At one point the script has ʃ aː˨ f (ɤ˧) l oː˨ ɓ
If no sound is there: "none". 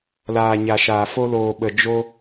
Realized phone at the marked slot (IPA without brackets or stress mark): o˧